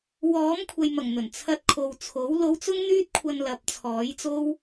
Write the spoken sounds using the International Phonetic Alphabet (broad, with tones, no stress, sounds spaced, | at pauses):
w ɔː˨˥ m kʷʰ ɐ˨ j m ɐ˨˩ ŋ n̪ ɵ˨˩ n t͡sʰ ɐ˧ t̚ kʰ o˨ w t͡sʰ o˨˥ w l o˨˧ w t͡s ʊ˧ ŋ n̪ yː˧ t̚ kʷʰ ɐ˨ n l ɐ˨˥ p̚ t͡sʰ ɔː˨˥ j t͡s o˥ w